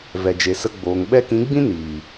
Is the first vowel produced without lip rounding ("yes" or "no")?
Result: yes